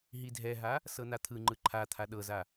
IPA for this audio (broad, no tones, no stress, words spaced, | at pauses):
ɦidʱɛɦa | sɤnat̪ʰɯ ŋ͡ǃɯǃʰat̪ʰa ɗɤza